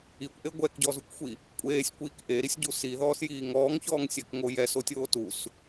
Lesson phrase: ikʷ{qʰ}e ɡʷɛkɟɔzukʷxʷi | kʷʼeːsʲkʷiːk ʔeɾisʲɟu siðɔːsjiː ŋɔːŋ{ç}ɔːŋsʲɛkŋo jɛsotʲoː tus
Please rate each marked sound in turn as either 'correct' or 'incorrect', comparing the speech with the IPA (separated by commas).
incorrect, correct